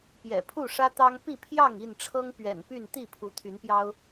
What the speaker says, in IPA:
pjɛ̰˨˩ pʰu˥˨ʂä˦t̪ɑ˦ŋ pi˥˨pʰjɑ˥˨ŋi˥˨nʈ͡ʂʰɤ˦ŋ pɥɛ̰˨˩npy˥˨n t̪i˥˨pʰu˨˦t̪ʰy˨˦npjɑ˦ʊ̯

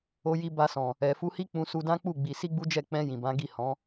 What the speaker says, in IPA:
o˧ji˧ ba˧sɔ̃˨ | ɛ˨fu˧hi˦ k͡pũ˧su˧dã˦k͡pu˦˨ ɡ͡bi˧ si˦ɡ͡bu˦d͡ʒɛ˦˨ k͡pɛ̃˧ jĩ˨bã˨˦ ɡi˦˨hɔ̃˨˦

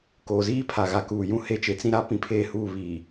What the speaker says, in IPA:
koː˨ziː˦ pʰa˨ɣa˨ kuː˨ jũ˦he˦˨t͡ʃe˦ t͡sĩ˦ɾa˦ pĩ˦pʰe˦˨huː˦˨ βiː˨

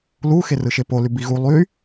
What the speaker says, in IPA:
lu xerɯʃepo lybiɣu lˠy

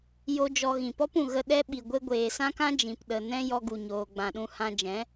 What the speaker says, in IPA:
jo˦d͡ʒɔ˧ ɣĩ˨pɔ˦pũ˨ ɣə˦ ɗɛ˧ ɓi˨ɡʷe˧ ɡʷeː˨sã˦kã˦ d͡ʒĩ˨pɗə˨nɛ̃˦ jɔ˧ɡu˨ɲoː˨ɡ͡bã˨ ɗũ˧hã˧d͡ʒɛ̃˨˦

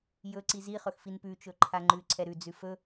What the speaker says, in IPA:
jɵǀi ziχɵx finpʉt͡ʃɵ ǃʰaŋ͡ǃʉǀʰɛ ɾʉd͡zʉ fɵ

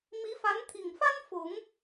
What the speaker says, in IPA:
mi˧˥fa˧˥nt̪ʰi˨˩ŋfa˥n fʊ˨˩˦ŋ

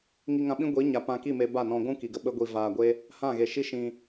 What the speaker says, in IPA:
ŋi˧ŋã˧ɓĩ˦ ɡʷi˨˦ɲa˨ pã˧ki˦˨me˧ ba˦˨nɔ̃˧ ɡʷũ˦ki˨ɡə˧ ɓə˦ɡʷi˧ vaː˧ɡʷe˦ | hã˦˨ɣe˨ʃi˦ ʃĩ˧

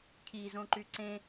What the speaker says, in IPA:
cʰizõǃy ǀẽ

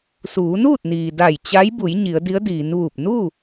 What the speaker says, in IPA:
suː˩˧nuː˥˨t̚niː˩ da˧˩j t͡ɕa˧˥j bu˩˧j ɲi˩˧ə̯di˧˥ə̯diː˩˧nʋuː˧˩p̚ nuː˥˨

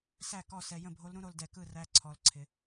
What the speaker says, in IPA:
sæ˥˩kɔ˥˩sɛ˧ jə̃˥˩bʱo˧˥lɾũ˧˥ɾo˧l dɛ˧kɯ˥˩ræ˧˥ ǀʰɔ˧lǀʰɪ˧

